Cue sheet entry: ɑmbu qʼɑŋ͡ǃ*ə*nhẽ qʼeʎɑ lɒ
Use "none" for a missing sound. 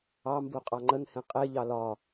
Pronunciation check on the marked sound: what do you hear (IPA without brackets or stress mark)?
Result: ə